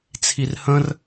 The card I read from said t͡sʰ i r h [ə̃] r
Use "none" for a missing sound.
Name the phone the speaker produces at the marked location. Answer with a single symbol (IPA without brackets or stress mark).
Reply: ə̃